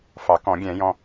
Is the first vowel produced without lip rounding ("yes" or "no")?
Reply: yes